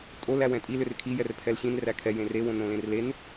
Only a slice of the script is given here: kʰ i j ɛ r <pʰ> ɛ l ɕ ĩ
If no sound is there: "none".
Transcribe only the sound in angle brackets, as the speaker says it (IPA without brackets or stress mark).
pʰ